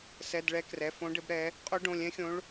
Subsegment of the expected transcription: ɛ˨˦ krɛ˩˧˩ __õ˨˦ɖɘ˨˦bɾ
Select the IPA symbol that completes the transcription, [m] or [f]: f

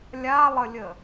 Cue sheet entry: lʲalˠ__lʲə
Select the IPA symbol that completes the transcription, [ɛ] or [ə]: ə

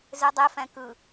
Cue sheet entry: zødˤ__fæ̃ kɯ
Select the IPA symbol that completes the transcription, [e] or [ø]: e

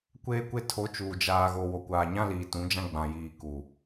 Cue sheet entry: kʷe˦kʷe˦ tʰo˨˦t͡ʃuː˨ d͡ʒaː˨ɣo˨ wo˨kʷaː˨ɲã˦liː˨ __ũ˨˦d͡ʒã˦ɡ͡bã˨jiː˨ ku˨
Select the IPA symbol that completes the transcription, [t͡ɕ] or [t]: t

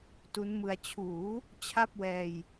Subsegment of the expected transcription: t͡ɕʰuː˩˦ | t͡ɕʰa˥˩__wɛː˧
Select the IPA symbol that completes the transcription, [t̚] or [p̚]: p̚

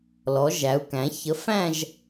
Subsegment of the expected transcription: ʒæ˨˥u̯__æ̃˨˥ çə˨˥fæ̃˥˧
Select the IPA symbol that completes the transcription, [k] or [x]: k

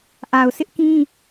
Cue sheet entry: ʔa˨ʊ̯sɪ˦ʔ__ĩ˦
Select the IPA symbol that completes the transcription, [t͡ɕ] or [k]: k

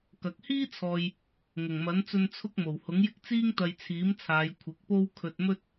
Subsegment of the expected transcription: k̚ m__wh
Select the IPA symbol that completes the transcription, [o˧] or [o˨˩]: o˨˩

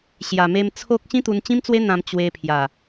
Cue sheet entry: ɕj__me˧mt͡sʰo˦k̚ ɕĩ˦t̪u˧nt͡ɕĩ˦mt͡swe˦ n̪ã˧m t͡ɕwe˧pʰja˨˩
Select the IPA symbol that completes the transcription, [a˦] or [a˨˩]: a˨˩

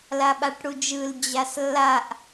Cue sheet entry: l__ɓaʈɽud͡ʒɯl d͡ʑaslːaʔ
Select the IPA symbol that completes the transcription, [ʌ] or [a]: a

